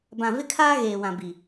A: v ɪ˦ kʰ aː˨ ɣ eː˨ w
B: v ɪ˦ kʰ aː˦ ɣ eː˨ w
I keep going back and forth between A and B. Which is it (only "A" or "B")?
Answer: B